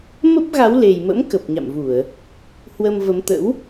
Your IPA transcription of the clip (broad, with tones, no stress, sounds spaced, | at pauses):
m ə˦˥ p̚ ɣ a˨˦ w l e˨˩ j m ə̰˧˥ m k ə˨˩ p̚ ɲ a̰˧˨ m v u˧˩˨ ə̯ | h w ə˧ m v ə˨˦ m t̪ ə̰˧˥ w